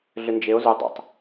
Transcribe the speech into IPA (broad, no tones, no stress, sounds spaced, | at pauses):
ɮ ʏ n d͡ʒ e o̯ z u dˤ ə̰ tˤ